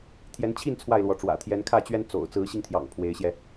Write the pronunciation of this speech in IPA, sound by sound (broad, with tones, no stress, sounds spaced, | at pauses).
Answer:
t̪ʰ j ɛ˨˦ n t͡ɕʰ i˥˨ n t͡sʰ w a˥˨ ɪ̯ l w ɔ˨˦ ʈ͡ʂ w ä̰˨˩ t̪ʰ j ɛ˨˦ n kʰ ä˥˨ t͡ɕ ɥ ɛ˦ n t͡s o̰˨˩ ʊ̯ t͡s ɹ̩˨˦ ɕ i˧ ŋ t̪ʰ j ɑ̰˨˩ ŋ pʰ w e˨˦ ɪ̯ ɕ j ɛ˧